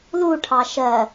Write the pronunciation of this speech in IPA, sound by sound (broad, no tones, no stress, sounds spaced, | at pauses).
l u ʈʰ ɑ ʃ ɜ